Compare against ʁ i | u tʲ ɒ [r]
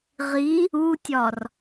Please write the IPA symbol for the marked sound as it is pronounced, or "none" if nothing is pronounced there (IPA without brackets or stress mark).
r